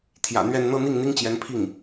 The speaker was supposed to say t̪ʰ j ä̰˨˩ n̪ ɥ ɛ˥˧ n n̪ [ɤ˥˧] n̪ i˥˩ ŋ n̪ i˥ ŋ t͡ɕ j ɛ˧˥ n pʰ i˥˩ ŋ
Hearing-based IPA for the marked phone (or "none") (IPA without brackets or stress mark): ɤ˥˧